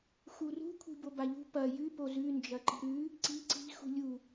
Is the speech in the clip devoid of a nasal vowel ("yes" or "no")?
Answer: yes